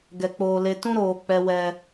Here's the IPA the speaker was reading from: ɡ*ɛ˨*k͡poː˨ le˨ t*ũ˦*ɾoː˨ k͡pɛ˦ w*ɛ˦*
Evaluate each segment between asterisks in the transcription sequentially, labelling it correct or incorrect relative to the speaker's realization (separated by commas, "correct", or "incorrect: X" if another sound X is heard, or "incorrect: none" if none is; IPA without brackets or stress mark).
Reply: correct, correct, correct